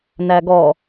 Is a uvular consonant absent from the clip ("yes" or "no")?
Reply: yes